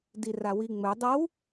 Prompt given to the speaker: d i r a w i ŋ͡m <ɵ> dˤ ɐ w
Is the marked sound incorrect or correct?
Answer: correct